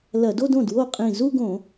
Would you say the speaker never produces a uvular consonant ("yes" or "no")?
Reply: no